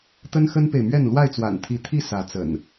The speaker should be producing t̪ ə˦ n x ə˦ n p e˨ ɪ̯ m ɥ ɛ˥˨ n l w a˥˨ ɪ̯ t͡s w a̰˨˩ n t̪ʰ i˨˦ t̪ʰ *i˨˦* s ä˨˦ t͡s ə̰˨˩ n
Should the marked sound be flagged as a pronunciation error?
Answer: yes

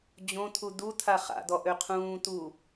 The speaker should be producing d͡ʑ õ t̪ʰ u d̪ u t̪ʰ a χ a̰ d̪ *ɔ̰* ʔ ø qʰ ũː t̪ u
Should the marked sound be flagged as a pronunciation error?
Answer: yes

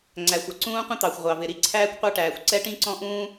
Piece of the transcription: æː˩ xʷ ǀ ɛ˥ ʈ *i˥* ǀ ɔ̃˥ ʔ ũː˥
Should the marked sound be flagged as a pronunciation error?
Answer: yes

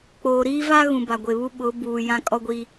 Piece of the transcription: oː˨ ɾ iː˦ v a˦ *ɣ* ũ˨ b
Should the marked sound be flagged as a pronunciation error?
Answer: no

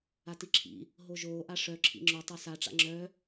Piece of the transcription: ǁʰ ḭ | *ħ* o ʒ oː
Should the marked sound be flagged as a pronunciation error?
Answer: yes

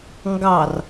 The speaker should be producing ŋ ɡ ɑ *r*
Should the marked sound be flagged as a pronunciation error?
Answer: no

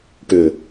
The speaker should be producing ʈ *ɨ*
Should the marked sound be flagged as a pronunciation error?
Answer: yes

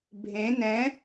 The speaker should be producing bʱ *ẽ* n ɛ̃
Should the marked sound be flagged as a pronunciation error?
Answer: no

